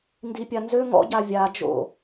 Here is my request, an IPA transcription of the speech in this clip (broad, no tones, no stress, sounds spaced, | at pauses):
n d i pʲ a n z ø ŋ ɔ̰ ɟ a vʲ a d͡ʒ o̰